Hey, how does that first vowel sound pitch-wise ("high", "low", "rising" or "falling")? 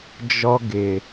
high